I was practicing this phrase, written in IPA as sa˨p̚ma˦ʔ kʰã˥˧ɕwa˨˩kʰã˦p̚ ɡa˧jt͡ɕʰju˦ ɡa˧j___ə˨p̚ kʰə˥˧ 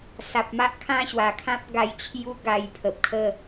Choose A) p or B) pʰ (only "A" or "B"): B